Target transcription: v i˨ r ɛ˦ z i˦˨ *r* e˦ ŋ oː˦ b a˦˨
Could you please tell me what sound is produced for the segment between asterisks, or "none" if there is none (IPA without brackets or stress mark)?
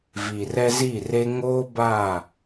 r